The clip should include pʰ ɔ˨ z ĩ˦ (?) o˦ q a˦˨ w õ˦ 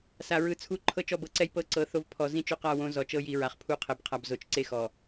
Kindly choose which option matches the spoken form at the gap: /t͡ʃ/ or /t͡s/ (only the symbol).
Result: t͡ʃ